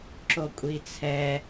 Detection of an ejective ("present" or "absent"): present